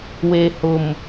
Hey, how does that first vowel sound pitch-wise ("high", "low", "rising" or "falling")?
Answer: low